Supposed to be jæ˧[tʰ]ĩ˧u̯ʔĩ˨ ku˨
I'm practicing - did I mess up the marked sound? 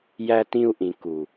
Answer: yes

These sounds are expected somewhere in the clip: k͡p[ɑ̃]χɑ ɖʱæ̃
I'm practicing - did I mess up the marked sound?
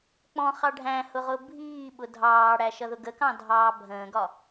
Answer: yes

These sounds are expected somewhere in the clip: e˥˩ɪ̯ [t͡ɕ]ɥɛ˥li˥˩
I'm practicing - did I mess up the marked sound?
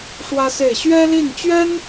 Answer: yes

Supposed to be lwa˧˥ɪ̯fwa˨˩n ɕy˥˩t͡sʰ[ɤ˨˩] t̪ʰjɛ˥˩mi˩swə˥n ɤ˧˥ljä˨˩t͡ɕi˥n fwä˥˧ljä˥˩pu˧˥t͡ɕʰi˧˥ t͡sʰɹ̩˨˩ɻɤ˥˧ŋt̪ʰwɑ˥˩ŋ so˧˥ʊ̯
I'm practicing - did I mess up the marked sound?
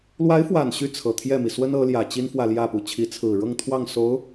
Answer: no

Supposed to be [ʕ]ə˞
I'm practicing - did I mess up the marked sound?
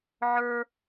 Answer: no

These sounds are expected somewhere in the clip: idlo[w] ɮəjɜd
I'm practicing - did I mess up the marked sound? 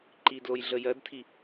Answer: yes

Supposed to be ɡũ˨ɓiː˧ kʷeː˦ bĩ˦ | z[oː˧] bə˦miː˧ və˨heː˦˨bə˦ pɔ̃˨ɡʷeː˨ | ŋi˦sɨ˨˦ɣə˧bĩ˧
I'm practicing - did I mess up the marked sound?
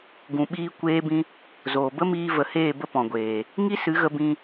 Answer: yes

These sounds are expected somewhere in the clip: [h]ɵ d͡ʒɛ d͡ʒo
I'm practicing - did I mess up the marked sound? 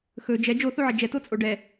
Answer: yes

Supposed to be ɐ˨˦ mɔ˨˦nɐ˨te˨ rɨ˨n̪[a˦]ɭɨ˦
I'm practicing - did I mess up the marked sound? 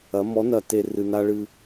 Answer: no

